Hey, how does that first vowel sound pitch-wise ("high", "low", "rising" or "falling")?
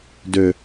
low